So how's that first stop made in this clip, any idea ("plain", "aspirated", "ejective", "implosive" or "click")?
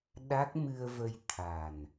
implosive